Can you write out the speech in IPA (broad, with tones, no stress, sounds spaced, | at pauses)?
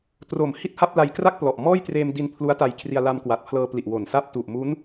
t r o˩˦ m h i˥˩ t̚ h a˥˩ p̚ l a˧ j k r a˥˩ k̚ p l ɔ˨˩ ʔ m ɔː˥˩ j t r eː˧ m d i˧ n pʰ l u˦˥ a̯ t a˧ j kʰ r i˧ a̯ l a˧ m k w a˨˩ t̚ pʰ l ɤː˧ p l i˨˩ ʔ w o˨˩ n s a˥˩ p̚ t u˨˩ ʔ m u˦˥ n